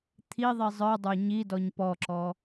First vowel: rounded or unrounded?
unrounded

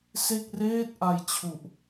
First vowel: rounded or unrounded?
unrounded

